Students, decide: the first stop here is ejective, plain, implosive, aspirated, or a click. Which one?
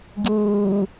plain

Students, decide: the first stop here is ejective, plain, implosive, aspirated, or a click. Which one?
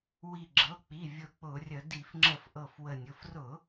click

